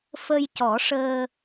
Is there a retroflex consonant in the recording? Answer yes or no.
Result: yes